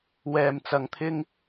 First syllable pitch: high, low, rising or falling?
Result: low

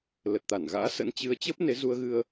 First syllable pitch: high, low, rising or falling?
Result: low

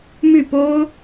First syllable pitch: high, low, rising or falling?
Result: falling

